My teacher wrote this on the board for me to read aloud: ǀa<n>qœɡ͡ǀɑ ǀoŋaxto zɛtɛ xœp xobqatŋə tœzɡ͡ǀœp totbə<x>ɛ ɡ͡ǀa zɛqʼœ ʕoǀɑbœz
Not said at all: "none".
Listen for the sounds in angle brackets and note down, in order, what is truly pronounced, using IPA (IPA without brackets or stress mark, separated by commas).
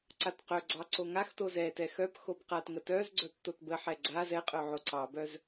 t, ħ